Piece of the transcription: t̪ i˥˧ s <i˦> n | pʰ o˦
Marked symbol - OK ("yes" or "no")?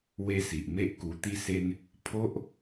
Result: no